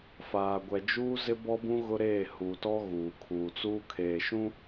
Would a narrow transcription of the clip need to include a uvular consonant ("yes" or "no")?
no